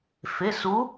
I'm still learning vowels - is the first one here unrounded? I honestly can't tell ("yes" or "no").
yes